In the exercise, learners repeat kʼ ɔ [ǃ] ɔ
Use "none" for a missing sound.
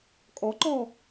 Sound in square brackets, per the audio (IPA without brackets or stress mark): ǃ